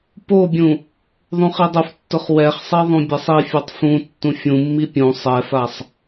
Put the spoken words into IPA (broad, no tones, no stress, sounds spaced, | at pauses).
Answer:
p o bʲ ũ | ðˤ ũ χ i dˤ ʊ f tː ʊ χ w ɛ χ sˤ e ðˤ ũ bʲ ɛ sˤ i fʲ a tˤ f ũ tː ũ fʲ ũ mː i pʲ ũ sˤ ɛ f a sˤ